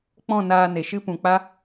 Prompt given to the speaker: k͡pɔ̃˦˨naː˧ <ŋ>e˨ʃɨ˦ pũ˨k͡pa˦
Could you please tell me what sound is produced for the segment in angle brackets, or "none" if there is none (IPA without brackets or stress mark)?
n